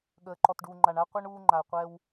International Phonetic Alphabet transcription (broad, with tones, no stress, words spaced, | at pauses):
ɠəː˨ǃɔ˨tɖuː˨ŋ͡ǃa˨ɳ a˦qʷɜ˦ɳ uː˦ ŋ͡ǃa˨ə̯ qʷɛ˦w